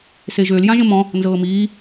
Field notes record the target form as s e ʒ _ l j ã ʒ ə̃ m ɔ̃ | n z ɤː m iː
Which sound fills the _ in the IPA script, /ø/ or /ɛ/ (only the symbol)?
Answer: ø